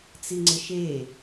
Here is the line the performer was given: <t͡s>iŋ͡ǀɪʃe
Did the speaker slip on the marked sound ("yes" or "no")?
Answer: no